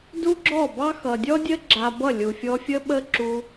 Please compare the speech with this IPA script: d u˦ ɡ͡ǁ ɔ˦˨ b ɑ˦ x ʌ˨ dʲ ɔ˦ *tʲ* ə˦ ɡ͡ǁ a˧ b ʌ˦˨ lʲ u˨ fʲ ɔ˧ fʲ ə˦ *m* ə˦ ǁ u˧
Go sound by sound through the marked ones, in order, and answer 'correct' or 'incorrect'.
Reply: incorrect: dʲ, incorrect: ɓ

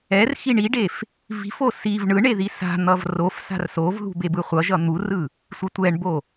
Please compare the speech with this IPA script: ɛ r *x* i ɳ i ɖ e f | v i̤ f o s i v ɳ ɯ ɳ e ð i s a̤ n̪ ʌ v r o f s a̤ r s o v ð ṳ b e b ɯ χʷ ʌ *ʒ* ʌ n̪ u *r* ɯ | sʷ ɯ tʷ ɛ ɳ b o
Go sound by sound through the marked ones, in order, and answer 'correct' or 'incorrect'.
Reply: correct, correct, correct

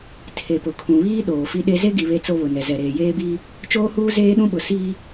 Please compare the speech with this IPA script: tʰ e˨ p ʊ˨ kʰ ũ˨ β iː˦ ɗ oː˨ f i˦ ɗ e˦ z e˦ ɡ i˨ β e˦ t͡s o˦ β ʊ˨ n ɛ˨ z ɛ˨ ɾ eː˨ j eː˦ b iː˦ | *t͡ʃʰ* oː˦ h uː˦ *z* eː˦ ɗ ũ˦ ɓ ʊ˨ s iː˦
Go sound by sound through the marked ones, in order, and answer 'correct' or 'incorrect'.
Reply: incorrect: t͡ʃ, correct

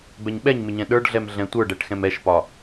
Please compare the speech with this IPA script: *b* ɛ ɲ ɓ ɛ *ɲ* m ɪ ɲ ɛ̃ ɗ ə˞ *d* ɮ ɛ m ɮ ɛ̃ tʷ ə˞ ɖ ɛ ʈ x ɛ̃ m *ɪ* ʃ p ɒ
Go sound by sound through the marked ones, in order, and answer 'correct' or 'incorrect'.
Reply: correct, correct, incorrect: ɖ, incorrect: ɛ

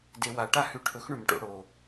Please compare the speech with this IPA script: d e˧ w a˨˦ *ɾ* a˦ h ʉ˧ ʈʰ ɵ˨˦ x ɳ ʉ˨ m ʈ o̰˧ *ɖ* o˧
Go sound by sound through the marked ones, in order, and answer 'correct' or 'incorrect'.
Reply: incorrect: ʈ, incorrect: ɽ

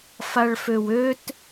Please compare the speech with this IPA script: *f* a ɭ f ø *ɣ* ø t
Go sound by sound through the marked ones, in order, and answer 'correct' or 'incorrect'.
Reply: correct, incorrect: w

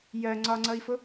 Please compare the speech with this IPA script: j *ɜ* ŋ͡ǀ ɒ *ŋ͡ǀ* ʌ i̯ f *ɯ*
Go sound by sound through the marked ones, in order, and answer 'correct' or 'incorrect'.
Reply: correct, correct, incorrect: ʊ

